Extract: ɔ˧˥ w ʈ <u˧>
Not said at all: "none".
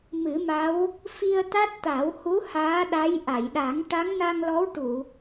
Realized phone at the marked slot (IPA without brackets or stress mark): u˨˩˨